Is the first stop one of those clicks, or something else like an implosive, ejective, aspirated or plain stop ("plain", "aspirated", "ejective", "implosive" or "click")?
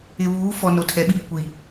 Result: aspirated